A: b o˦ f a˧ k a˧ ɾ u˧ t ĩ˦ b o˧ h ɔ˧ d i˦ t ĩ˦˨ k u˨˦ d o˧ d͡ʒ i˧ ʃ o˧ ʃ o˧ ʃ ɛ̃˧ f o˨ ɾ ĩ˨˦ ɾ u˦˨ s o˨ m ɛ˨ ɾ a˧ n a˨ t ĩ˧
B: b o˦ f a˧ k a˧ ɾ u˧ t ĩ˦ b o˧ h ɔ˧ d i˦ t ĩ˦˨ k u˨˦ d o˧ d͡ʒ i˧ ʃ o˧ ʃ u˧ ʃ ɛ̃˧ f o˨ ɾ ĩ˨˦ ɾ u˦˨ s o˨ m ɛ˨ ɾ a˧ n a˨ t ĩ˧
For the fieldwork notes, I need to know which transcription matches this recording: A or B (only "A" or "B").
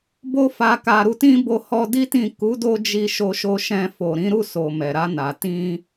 A